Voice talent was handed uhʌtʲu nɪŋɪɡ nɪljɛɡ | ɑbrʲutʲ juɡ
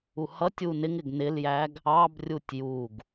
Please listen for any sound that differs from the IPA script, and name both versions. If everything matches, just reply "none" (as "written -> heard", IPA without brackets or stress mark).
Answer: ɛ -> æ